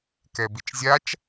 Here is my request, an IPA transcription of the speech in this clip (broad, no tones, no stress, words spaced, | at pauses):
kɛbit͡ʃzʲat͡ʃ